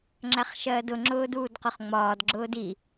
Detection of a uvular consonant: present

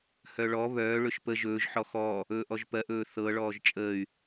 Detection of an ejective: present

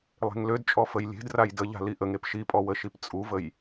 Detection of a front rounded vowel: present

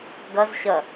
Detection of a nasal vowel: absent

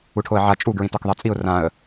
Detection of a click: absent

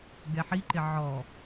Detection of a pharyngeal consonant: present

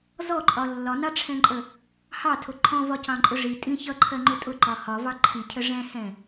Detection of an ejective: present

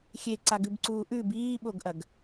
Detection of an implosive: present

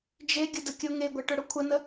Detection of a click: absent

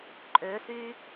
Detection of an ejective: present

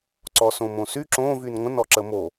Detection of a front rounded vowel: present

